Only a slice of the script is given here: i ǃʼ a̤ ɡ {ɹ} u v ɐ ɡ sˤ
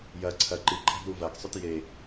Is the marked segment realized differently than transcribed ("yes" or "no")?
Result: yes